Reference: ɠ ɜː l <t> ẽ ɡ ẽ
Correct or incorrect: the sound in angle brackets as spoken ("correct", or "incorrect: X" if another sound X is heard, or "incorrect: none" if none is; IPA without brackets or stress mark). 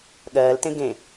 correct